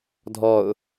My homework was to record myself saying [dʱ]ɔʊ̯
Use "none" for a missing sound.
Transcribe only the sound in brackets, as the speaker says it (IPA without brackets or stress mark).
dʱ